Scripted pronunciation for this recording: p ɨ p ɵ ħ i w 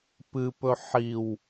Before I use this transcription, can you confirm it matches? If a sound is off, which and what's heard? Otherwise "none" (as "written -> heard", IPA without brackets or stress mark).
none